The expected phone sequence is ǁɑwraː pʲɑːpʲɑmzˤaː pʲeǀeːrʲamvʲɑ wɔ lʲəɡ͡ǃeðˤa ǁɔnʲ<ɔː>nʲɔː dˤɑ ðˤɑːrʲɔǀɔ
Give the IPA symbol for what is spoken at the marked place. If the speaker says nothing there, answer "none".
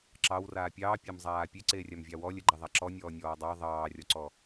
ɔː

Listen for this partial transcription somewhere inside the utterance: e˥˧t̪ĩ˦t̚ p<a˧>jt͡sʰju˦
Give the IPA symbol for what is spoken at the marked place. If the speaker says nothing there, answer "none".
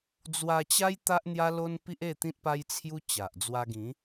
a˦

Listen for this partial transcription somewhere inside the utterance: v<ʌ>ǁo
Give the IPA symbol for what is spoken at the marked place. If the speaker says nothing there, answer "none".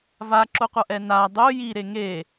a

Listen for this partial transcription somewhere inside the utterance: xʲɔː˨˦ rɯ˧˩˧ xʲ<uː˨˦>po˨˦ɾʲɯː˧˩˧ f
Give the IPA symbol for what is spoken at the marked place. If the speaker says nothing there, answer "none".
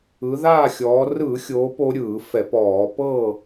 oː˨˦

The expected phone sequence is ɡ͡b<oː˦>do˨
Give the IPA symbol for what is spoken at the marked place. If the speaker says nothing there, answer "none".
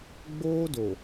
oː˦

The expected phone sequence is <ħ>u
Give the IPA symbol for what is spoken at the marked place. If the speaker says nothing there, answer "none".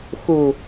x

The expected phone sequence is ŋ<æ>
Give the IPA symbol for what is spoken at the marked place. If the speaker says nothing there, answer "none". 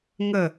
ə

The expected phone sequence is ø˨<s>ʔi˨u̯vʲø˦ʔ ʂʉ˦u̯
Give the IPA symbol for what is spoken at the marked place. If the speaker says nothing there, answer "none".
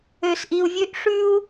s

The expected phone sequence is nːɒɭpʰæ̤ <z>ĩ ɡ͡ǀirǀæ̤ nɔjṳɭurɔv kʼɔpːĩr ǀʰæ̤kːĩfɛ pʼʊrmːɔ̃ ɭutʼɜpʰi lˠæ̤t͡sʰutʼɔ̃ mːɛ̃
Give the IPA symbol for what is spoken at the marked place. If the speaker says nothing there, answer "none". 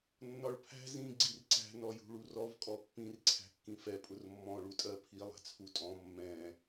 z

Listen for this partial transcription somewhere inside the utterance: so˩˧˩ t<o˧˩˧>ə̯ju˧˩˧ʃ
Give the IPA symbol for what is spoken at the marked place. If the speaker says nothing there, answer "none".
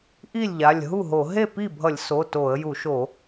o˧˩˧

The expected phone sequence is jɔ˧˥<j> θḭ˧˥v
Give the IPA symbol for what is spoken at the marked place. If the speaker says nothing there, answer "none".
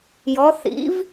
none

